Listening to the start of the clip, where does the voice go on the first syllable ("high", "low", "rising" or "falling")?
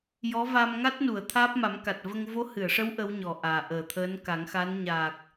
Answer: rising